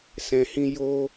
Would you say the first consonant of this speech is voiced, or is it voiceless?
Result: voiceless